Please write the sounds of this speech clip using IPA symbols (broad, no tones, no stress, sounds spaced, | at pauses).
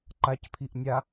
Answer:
ǃ a c pʰ i ʔ nʲ a